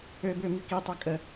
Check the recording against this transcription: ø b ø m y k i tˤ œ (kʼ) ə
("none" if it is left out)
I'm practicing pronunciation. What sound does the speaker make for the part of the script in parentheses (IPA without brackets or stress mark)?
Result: kʼ